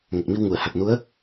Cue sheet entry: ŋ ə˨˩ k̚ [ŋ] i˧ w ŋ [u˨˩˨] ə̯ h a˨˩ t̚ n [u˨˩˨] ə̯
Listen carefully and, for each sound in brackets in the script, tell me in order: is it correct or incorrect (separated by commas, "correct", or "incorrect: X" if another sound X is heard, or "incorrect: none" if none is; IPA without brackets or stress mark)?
incorrect: m, correct, incorrect: u˧˥